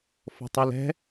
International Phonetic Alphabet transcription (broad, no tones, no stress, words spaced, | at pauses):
fɔ̤tˤilɛ̤